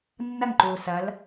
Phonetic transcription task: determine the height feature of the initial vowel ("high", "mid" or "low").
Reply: low